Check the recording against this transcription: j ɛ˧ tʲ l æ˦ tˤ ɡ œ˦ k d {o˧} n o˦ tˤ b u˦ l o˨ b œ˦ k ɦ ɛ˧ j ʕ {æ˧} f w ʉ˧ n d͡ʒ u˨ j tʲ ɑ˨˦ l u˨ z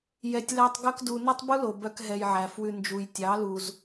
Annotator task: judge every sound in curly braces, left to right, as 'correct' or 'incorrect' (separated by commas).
incorrect, incorrect